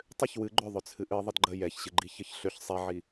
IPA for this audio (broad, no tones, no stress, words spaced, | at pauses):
tˤʏç wɨ ɡ͡ǃʏ ðˤʏt͡sʰɨʔɨ ðˤədɡ͡ǃə jɛçɕɨɡ͡ǃi çəçɬʏç sˤɛʕi